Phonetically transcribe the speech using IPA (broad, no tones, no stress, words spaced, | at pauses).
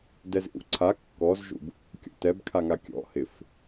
dɛzʔṵǀʰa kːɔzʒṵb | kʲɔ̰tɛbkʰaŋa kʲɔ̰ hɪf